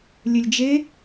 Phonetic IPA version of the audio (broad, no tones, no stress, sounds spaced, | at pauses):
lʲ ɘ lʲ d͡ʒ e